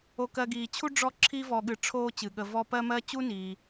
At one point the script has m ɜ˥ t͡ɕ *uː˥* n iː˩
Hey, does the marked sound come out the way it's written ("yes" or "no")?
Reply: no